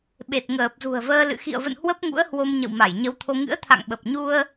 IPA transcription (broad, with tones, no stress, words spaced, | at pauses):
ɓe˨˩t̚ŋəː˨˩p̚zṳ˨˩ə̯vəː˧ lɨ̰˧˨xḭ˧˨ə̯və̰˧˨n hwə˦˥p̚ŋṵ˧˥ə̯hwo˧m ɲə̰˧˨wma˧˩j ɲə˨˦wt̪ʰo˧ ŋɨ̰˧˥ə̯ t̪ʰa̰˧˨ŋɓə˨˩p̚ɲu˧ə̯